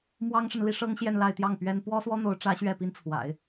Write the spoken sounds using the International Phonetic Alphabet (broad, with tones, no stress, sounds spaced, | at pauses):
m w ɑ˥ ŋ ʂ ə˨ n l i˥ ʂ ɤ˥ ŋ ɕ j ɛ˥˧ n l a˥˧ ɪ̯ t̪ j ɑ˥˩ ŋ p ɥ ɛ˥ n p w ɔ˥ s w ɔ˥ n̪ o˧˥ ʊ̯ ʈ͡ʂ ä˧˥ ɕ ɥ ɛ˥˩ p i˥ n t͡sʰ w a̰˨˩˦ ɪ̯